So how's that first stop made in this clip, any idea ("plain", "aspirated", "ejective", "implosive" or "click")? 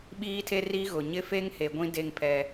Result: implosive